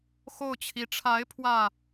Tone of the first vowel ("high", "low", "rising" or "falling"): falling